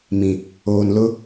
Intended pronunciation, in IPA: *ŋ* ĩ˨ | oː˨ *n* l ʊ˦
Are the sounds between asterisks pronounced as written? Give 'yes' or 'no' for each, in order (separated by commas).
no, yes